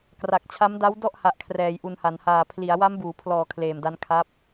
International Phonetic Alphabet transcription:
k r a˨˩ k̚ t͡ɕʰ a˦˥ m d a˦˥ w d ɔ˥˩ ʔ h a˨˩ ʔ kʰ r ɛː˨˩ j ʔ u˨˩ n h a˩˦ n h aː˨˩ pʰ l i˩˦ a̯ w a˦˥ m b uː˩˦ pʰ l ɔː˨˩ kʰ l eː˨˩ m d a˦˥ n kʰ a˦˥ p̚

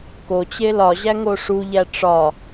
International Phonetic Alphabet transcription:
k o t͡ɕ e l ɒ ʑ æ ŋ o ʂ u ʎ æ ʈ͡ʂ ɒ

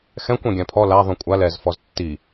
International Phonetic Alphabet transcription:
x ɛ̃ kʷ ɛ̃ ɡʲ ã pʰ ɔ l a ðˤ ũ kʷʼ a l ɛ z f ɔ z tː i

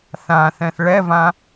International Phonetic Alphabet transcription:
θ ã θ ɛ̃ θ ɭ ɛ v ã

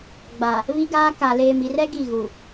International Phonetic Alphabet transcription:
ɡ͡b a˨ | β i˦ ɡ aː˦ k a˨ l eː˨ m i˨ r ɛ˦ ɡ i˦˨ ɣ u˨

